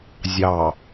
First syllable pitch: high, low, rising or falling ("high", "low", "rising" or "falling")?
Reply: low